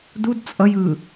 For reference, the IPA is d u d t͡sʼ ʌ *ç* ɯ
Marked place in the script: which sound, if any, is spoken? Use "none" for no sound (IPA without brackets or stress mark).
j